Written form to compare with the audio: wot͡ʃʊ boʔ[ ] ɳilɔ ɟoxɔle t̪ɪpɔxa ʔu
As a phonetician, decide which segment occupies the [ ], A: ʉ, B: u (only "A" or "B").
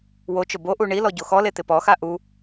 B